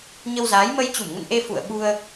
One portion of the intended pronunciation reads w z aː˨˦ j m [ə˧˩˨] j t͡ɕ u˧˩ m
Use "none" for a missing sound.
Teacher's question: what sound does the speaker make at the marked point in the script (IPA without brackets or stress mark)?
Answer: ə˧